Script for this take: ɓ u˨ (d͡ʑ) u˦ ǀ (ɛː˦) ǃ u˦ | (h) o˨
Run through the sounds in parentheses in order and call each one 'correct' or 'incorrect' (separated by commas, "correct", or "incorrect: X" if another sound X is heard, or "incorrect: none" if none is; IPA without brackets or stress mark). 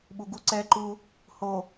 incorrect: ɡ, correct, correct